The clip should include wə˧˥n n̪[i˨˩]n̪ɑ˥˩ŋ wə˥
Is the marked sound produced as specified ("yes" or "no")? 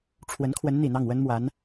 yes